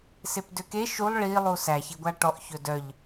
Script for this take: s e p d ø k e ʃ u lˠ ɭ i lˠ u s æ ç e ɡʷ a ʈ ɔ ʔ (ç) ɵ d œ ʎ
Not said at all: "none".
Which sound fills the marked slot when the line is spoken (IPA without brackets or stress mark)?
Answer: ç